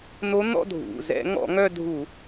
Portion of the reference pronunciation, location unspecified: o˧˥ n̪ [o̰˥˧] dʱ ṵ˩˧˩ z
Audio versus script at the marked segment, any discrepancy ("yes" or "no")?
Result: yes